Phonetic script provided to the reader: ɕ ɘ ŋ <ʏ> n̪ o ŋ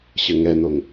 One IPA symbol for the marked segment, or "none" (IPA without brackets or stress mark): ɛ